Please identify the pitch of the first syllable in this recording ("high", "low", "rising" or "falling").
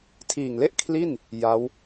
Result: low